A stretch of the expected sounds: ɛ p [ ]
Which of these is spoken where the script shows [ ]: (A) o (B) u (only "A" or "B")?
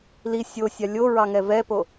A